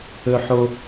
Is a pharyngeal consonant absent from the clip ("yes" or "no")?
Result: no